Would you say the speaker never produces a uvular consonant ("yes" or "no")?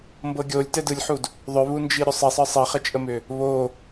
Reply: no